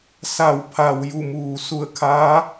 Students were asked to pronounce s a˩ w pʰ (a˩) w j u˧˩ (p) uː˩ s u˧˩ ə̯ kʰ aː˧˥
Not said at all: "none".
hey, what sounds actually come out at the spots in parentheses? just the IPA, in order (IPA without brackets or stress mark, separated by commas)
a˩, m